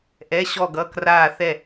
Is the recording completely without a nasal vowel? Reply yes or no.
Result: yes